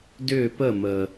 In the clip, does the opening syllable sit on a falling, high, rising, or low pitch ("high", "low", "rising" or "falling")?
falling